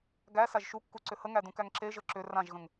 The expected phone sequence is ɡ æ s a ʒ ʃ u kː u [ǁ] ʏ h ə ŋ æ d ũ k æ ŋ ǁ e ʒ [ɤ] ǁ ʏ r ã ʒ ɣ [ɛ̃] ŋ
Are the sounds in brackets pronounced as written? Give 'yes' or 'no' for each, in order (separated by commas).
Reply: no, yes, no